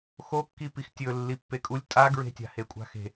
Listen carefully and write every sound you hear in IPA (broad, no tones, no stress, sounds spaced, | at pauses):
x o kː i p i x tʲ ɵ lː i pː e kʼ u lʲ tʼ a ɡ ɹ e̤ tʲ a̤ h e kʷʼ a̤ x e̤